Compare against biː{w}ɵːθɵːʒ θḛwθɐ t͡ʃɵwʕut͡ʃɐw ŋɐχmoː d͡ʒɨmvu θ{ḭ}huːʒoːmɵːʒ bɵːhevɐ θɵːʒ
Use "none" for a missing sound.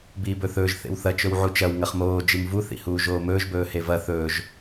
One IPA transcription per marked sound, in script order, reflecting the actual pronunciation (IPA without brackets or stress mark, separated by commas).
b, ḭ